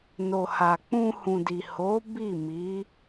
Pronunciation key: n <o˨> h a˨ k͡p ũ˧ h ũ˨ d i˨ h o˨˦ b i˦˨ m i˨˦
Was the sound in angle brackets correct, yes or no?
yes